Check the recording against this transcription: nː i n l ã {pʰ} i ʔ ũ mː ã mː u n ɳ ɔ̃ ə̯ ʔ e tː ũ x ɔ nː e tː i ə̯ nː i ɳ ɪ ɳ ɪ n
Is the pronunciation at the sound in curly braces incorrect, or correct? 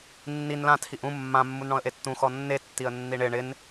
incorrect: tʰ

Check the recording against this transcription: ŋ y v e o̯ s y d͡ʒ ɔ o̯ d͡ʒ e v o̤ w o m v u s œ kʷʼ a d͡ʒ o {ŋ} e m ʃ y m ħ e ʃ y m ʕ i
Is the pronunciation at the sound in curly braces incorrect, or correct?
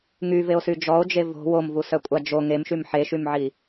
correct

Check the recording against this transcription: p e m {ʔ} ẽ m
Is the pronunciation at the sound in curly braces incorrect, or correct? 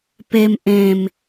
correct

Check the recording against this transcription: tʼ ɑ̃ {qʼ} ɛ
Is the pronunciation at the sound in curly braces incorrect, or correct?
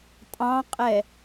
correct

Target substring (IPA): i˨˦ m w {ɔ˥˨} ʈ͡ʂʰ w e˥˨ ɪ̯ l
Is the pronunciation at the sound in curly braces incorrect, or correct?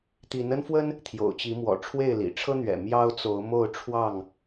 incorrect: ɔ̰˨˩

